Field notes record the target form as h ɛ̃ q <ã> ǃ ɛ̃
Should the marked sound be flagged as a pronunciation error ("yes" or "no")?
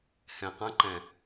no